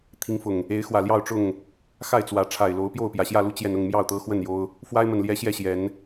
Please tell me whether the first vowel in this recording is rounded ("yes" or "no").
no